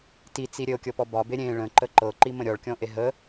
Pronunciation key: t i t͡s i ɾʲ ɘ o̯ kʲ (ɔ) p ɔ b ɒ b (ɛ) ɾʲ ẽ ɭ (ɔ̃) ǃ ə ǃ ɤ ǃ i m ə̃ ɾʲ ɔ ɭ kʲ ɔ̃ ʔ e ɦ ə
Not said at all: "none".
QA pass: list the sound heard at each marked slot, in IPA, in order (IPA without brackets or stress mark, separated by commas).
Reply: ɤ, e, ə̃